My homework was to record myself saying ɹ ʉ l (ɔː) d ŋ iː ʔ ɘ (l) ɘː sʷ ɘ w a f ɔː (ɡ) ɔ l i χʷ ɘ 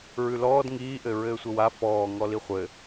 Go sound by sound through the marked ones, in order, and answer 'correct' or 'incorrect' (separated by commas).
correct, incorrect, incorrect